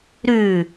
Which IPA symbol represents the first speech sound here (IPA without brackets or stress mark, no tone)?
ɾ